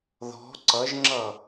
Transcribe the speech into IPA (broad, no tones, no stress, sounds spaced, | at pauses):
ð ɔ̤ ǀ ʌ ʒ ŋ͡ǁ ʌ